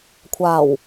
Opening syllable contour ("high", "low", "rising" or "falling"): low